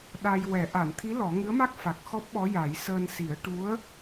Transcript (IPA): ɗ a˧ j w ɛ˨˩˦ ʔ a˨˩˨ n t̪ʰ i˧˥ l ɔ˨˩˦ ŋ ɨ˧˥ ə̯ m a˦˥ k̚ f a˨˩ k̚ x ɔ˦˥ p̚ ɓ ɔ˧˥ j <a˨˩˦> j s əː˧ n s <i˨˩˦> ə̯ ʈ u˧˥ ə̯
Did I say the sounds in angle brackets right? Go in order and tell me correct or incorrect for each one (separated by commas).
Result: correct, correct